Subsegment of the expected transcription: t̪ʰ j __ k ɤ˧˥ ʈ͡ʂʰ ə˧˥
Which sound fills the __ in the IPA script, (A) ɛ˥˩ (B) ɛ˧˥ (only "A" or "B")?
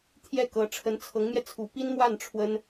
A